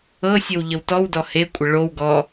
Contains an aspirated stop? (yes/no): no